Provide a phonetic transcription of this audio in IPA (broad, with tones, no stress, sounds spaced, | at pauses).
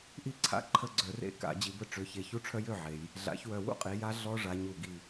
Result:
ʔ i˥˨ ǀʰ a̰˦˥ ǃʰ ə˥˨ ɡ͡ǀ œ˧˩˧ r ḛ˥˨ k a̰˧˩˧ d͡ʑ i˩˧ b ə˧ ʈ͡ʂ ø˩˧ ç e˨˩ ç u˦˥ ʈ͡ʂʰ œ˦˥ j ø˥˨ ʕ e˩˧ j | ɮ a̰˩˧ ç w œ˨˩ w ṵ˥˨ qʼ i˩˧ j a˦˥ ɮ ɔ˦˥ ʐ a˩˧ ɲ u˨˩ ɡ i˨˩